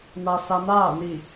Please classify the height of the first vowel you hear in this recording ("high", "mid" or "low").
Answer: low